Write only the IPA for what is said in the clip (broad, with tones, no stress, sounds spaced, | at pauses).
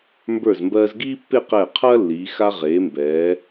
m b ə˞˧˩ z m b ɜː˧ z ɡ iː˥ pː e˥˧ q ɛː˧˩ qʰ ɐː˥ lː iː˩˧ x a˧ ʁ eː˩˧ m b ɛː˩˧